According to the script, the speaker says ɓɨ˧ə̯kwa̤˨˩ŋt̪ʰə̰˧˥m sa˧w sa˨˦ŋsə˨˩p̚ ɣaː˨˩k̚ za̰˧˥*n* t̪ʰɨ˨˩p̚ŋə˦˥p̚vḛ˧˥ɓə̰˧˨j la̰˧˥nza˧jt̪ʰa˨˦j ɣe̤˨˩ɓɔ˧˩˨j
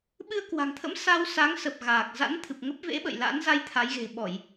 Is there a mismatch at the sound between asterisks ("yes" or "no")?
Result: no